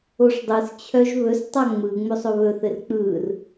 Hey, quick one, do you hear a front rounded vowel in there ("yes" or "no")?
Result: yes